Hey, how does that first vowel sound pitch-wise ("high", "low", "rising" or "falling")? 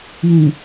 low